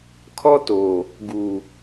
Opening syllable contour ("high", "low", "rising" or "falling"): high